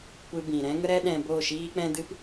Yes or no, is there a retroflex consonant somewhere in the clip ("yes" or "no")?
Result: no